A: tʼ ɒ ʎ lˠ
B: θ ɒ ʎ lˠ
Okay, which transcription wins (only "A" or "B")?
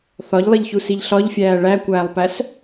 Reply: B